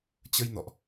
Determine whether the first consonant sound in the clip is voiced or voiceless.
voiceless